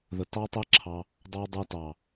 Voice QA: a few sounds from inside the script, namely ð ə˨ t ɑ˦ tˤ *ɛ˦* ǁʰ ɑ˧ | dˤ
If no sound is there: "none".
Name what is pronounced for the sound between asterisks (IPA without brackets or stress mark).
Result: ɛ˦